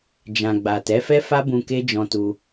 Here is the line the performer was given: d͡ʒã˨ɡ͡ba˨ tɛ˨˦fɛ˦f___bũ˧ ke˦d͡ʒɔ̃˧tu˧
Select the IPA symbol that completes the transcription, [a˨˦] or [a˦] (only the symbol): a˦